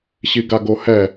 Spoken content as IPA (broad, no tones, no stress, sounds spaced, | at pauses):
ɕ i ɡ a ɡ o h ɛ